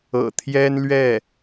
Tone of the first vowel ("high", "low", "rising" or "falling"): low